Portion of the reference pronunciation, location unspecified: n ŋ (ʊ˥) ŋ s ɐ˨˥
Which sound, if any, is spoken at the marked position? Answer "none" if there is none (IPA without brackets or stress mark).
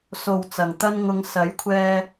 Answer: ʊ˧